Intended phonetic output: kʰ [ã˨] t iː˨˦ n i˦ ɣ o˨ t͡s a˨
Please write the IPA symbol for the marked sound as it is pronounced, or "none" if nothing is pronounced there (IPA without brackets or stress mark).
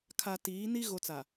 a˨